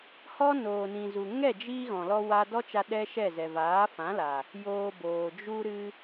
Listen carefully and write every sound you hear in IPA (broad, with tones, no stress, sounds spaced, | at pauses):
h ɔ˦ n oː˨ n ĩ˨ z u˨ ŋ ɛ˦˨ d͡ʒ i˧ ɣ ɔ̃˨ l ɔ˧ w a˧ d ɔ˦ t͡ʃ a˧ ɗ ɛ˦ ʃ ɛ˦˨ z ɛ˨ v aː˨˦ f ã˨˦ l a˨ | j oː˧ b oː˨ d͡ʒ u˧ ɾ ɨ˧